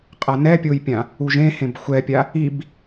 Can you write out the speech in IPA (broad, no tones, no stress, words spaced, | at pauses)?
qʼanɛpʲojpʲã | uʒẽhẽb xʷɛpʲa | ib